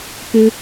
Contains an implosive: no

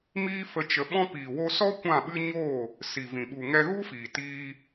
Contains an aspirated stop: no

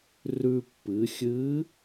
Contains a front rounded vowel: no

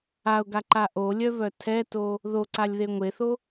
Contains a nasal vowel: no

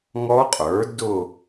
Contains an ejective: yes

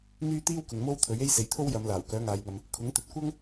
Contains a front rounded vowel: yes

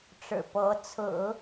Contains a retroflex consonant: yes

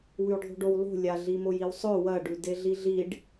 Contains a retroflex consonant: yes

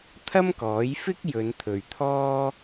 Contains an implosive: no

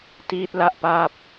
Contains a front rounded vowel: no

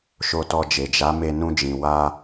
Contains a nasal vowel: yes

